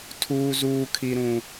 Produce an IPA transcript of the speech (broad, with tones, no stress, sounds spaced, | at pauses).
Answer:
tʰ uː˨ z uː˨ kʰ i˨ ɾ ũ˨